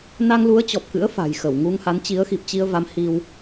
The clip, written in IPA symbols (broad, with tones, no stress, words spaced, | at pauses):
na˧ŋlu˨˦ə̯t͡ɕɔ˨˩p̚kɨ̰˧˥ə̯ fa̤˨˩jxə˧˩wŋu˧ŋha˨˦n t͡ɕi˨˦ə̯xi˨˩p̚t͡ɕi˧ə̯va˨˦m hi˧w